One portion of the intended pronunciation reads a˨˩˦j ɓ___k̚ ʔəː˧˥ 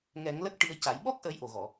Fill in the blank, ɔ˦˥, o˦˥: ɔ˦˥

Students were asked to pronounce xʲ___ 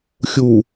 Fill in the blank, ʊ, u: u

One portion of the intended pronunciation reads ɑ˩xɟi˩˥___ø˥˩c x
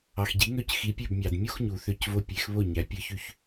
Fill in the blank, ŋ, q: ŋ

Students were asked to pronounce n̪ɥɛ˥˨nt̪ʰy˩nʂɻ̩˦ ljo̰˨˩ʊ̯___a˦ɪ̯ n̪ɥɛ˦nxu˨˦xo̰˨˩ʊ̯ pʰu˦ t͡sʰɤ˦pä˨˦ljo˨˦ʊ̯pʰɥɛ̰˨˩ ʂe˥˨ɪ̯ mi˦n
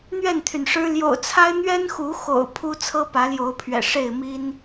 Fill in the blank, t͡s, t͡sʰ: t͡sʰ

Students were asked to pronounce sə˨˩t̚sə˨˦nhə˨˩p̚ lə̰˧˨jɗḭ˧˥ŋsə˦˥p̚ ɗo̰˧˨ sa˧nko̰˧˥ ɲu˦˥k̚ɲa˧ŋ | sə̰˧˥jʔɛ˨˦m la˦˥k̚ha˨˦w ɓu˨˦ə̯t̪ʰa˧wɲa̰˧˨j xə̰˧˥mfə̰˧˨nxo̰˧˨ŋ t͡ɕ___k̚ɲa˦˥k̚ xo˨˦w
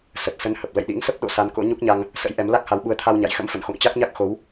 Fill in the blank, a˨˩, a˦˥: a˦˥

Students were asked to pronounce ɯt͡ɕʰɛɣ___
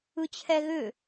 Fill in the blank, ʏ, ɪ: ʏ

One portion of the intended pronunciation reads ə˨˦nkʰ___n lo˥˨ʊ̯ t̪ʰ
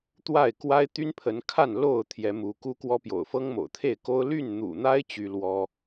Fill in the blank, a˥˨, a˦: a˥˨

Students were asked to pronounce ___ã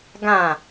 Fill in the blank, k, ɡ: ɡ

